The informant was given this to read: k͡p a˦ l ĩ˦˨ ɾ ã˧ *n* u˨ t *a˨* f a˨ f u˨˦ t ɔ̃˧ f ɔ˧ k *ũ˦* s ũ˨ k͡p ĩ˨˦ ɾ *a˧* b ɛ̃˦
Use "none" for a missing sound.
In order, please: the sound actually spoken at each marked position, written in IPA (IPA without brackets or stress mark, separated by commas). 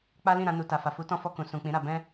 n, a˨, ũ˨, a˧